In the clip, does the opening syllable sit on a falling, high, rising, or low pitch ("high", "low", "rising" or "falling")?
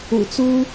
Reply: low